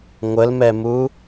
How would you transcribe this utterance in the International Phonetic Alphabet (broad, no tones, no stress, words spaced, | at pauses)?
ŋʷəlmɛmu